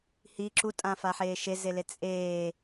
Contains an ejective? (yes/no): yes